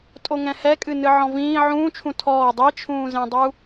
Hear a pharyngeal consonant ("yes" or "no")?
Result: yes